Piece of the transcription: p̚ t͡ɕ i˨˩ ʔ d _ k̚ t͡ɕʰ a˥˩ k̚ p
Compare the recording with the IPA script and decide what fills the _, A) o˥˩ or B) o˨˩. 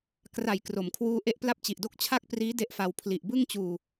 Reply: A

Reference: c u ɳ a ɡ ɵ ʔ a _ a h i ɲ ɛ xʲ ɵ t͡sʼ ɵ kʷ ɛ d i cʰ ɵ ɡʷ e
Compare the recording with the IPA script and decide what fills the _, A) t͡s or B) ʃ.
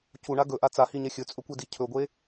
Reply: A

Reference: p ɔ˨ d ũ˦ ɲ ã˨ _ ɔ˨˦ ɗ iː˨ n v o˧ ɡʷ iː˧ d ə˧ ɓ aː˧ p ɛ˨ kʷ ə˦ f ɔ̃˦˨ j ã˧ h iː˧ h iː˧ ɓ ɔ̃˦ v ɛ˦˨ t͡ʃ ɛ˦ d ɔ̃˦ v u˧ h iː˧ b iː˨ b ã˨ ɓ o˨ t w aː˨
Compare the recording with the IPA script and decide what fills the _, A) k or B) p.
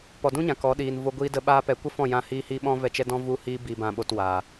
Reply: A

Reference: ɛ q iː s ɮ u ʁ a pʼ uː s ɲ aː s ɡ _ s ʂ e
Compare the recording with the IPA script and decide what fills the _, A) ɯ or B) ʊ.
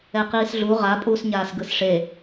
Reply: A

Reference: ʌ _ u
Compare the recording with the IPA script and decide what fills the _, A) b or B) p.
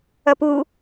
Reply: B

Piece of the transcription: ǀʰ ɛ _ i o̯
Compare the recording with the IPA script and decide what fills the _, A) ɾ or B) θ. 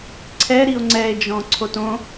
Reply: A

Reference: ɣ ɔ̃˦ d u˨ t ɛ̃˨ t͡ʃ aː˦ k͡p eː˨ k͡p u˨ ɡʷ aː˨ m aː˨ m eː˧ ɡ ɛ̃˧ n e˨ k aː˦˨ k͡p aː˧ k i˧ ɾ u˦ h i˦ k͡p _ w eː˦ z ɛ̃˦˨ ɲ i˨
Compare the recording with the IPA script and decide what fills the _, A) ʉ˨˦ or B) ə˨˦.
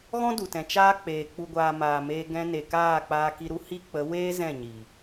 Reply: B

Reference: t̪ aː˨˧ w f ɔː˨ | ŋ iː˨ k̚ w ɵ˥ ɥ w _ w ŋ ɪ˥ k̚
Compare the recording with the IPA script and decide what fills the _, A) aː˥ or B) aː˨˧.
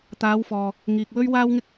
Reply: A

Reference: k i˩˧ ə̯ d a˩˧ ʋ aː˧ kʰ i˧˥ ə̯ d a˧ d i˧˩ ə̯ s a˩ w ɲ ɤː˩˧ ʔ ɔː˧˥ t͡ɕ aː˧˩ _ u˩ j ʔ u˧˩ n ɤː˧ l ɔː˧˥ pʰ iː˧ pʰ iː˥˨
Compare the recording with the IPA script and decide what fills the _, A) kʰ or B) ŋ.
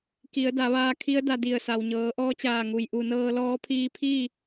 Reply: B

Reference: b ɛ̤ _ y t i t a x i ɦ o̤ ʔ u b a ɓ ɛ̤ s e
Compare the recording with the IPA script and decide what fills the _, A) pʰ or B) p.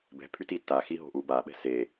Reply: A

